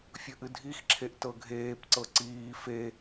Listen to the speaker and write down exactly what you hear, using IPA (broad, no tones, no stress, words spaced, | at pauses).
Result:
fʲɵʔɨdʱixǁʰeʔ tɤɡʱeːpǀɤ ǀiː fe